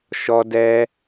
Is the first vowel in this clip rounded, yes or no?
yes